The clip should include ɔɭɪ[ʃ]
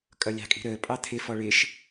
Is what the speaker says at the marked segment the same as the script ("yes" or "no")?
yes